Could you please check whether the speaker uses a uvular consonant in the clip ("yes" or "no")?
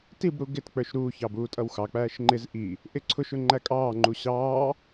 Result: no